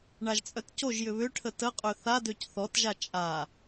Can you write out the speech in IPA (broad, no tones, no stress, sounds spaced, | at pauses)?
ɳ a ʒ t͡sʼ œ t c o ʒ j ʏ β ʏ ʈʰ ə t ə qʼ ø θ a d ø c θ ɔ t ʒ a t͡ʃʼ a